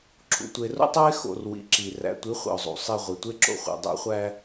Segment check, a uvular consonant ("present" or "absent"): present